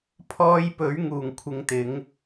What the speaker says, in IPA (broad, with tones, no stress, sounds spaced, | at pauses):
pʰ ɔː˧ j p ɵ˨˥ ɥ ŋ uː˨˩ ŋ kʷʰ ɪ˨ ŋ t̪ ɪ˨˧ ŋ